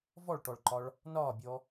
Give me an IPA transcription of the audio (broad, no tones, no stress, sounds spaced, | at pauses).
v ɔ ɭ ʈ ɔ ɭ ǃ ɒ ɭ | n ɒː bʲ ɔ